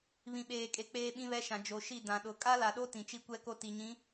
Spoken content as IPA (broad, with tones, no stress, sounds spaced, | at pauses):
β ĩ˨ ɓ eː˨ kʼ e˨ k͡p eː˦ ɓ ĩ˦ β ɛ˦ ʃ ã˨ d͡ʒ o˨ ʃ i˦˨ d ã˨ ɗ ʊ˨ kʼ a˦ l a˨ ɗ o˦ t ĩ˨ t͡ʃ i˦ kʷ ɛ˦ k o˦ t i˨ ɲ ĩ˨˦